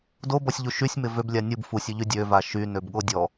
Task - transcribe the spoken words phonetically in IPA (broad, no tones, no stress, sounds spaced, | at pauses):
d o b ɔ sʲ ʎ u ʃ y sʲ m ɪ v ø b lʲ a nʲ u b f u sʲ ø ʎ y dʲ ø v a ʃ y n ø b ɠ o dʲ ɔ